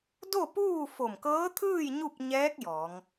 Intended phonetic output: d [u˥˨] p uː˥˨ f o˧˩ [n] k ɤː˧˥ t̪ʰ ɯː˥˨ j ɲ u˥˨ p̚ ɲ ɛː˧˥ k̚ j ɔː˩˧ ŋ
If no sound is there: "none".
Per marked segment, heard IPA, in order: o˥˨, m

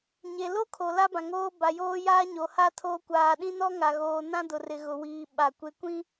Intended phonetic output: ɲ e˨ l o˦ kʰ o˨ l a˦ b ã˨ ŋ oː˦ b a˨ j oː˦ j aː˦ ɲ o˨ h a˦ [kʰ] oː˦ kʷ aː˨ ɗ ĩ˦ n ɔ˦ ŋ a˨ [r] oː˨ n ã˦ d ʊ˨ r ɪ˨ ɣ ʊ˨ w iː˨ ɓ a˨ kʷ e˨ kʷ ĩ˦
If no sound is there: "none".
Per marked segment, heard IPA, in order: tʰ, ɣ

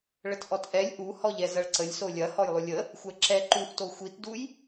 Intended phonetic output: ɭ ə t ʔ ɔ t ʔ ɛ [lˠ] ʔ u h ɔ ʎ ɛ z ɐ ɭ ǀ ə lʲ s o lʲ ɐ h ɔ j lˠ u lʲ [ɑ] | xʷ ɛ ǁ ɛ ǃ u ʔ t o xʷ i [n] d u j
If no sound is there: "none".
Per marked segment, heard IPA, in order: lʲ, ə, t

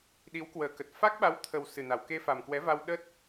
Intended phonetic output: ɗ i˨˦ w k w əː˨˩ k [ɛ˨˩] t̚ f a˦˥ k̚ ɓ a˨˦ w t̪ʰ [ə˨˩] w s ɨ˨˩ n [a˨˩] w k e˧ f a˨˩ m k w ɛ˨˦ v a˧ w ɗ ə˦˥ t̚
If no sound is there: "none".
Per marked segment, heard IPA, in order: ə˨˩, ə˨˩, a˨˩

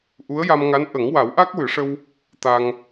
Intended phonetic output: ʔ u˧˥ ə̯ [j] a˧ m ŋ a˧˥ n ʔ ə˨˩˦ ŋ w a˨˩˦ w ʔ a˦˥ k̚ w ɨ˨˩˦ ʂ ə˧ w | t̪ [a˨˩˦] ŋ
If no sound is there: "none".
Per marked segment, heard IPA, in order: j, a˧

